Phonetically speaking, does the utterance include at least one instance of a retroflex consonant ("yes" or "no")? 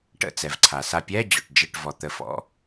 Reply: yes